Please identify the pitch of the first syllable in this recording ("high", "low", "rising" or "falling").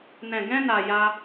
low